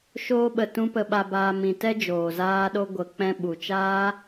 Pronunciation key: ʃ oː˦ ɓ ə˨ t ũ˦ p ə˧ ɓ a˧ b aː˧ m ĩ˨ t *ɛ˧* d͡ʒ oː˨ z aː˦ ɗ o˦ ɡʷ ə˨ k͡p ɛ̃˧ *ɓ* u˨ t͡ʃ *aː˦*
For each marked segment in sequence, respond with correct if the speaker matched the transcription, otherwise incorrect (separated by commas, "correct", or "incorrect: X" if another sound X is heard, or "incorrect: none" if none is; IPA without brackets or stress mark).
incorrect: ɛ˦, correct, correct